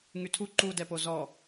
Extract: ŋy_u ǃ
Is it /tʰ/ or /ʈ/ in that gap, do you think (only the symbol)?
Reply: tʰ